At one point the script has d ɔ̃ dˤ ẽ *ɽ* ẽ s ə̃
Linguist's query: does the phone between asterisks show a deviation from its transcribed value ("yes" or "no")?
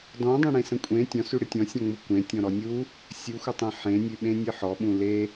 no